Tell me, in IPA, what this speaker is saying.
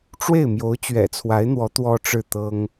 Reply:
ʈ͡ʂ w e˥˩ ɪ̯ m j o˧˥ ʊ̯ t͡ɕ ɥ ɛ̰˨˩ t͡sʰ w a˧˥ ɪ̯ n̪ w ɔ˧˥ t̪ w ɔ˥ ʈ͡ʂ ɻ̩˥˩ t̪ ɤ˥ ŋ

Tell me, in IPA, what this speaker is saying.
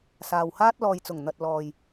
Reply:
s aː˨ w h aː˥ t̚ l ɔː˨ j t͡s ʊ˨˩ ŋ n̪ ɐ˨ t̚ l ɔː˨ j

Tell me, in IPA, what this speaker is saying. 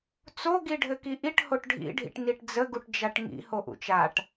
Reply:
t͡s o ɡ i ɖʱ ɘ k i ʔ i ʈ h o ʈ ɖʱ ḭ ɖʱ ḭ ʈ n i ʈ d͡z ə ɡ u ʈ d͡ʒ a ʈ ŋ ḭ h o ʔ ṵ t͡ʃ a ʈ

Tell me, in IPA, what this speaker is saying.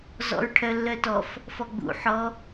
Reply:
z ɔ̰ ɹ ʈʰ œ lː œ t ɔ f | f ɔ ɡ͡b ṵ ħ ɔ

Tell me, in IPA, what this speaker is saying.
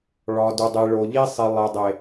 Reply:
ɭ ɒ˨ d u˨ dˤ i˨ ɭ o˨ ʎ i˦ sˤ i˨ lˠ e˨ dˤ e˨

